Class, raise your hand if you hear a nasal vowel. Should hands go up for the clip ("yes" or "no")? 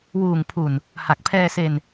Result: no